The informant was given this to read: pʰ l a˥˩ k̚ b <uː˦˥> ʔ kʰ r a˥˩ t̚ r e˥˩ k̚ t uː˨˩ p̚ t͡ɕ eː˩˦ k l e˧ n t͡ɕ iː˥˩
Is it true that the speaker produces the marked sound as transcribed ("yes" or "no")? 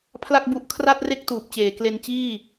no